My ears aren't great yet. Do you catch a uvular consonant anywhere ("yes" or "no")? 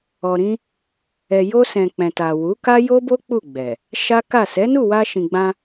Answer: no